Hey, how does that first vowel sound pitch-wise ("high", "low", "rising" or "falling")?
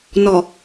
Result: low